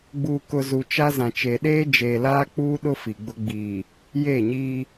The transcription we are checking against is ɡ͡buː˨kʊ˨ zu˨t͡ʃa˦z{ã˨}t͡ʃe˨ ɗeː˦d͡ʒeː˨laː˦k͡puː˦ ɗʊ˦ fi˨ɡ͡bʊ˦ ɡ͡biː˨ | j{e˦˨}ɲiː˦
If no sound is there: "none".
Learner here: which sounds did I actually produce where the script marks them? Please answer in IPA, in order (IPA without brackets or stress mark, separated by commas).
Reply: ã˨, e˦˨